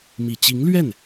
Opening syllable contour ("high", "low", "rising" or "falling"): low